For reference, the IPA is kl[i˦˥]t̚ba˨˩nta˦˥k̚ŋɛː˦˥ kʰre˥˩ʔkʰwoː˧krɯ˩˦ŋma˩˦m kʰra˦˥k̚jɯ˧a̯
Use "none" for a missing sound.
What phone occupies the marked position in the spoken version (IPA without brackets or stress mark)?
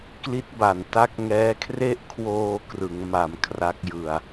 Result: i˦˥